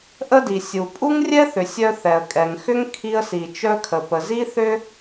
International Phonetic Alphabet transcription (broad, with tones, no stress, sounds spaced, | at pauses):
ʔ ə˥ d i˩ sʲ u˩ pʼ u˥ ŋ rʲ ɛ˥ θ ʏ˩ sʲ œ˥ θ ɛ˩ ə̯ kʼ ɛ˩ ŋ x ʏ˥ ŋ kʰ i˥ ə̯ s i˩ t͡ʃ œ˥ kʰ ə˩ p ə˩ z i˥ θ ʏ˥